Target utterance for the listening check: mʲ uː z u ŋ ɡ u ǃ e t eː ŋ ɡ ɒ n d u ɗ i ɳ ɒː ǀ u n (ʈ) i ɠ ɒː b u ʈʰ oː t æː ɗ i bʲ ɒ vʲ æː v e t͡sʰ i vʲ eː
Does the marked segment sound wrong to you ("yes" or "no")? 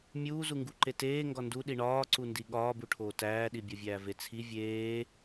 yes